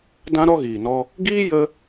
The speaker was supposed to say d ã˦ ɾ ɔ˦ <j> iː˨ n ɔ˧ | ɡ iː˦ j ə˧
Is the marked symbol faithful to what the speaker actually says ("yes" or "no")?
no